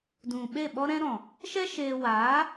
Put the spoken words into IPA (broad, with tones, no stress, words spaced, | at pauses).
dũ˨ ɓe˦˨ɓɔ˦ɾɛ̃˦ɾɔ̃˨ | ʃɛ˦ ʃeː˧ waː˨˦